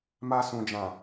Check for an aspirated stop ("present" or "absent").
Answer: absent